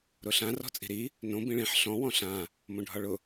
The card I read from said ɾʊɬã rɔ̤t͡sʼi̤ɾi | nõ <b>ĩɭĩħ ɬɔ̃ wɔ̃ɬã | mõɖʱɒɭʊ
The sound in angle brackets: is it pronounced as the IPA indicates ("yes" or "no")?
yes